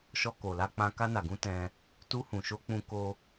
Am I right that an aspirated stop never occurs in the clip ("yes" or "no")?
yes